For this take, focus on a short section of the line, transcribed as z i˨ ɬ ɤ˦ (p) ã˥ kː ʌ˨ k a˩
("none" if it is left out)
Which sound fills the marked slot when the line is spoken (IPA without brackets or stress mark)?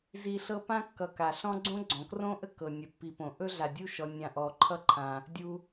p